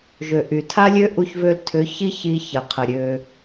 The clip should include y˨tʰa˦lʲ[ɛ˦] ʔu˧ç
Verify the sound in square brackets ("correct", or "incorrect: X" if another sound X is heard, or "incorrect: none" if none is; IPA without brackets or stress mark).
incorrect: ø˦